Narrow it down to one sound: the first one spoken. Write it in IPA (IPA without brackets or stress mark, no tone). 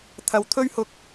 t̪ʰ